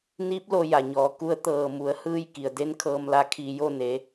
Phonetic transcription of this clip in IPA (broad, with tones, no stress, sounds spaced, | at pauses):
n iː˧˥ p̚ l o˧ j a˧˩ ɲ ɔː˩˧ k u˧˥ ə̯ t̪ ɤː˧˩ m u˩˧ ə̯ h ɯː˧ j k i˩ ə̯ d e˧˥ n kʰ ɤː˧ m l a˧ kʰ iː˧˩ j o˥˨ n e˩˧